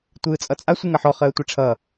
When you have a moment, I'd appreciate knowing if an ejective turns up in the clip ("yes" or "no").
yes